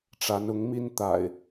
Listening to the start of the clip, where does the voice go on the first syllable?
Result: rising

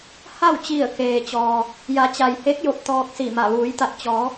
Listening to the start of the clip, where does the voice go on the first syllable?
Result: falling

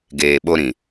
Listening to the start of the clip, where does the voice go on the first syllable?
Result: low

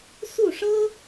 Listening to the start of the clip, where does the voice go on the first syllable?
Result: falling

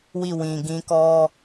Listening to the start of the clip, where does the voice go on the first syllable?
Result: falling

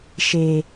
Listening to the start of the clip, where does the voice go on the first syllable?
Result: low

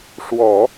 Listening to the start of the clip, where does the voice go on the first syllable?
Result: low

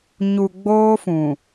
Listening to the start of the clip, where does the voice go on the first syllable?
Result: low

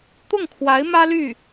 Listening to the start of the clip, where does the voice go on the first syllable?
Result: falling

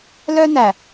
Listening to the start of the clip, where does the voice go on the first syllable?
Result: high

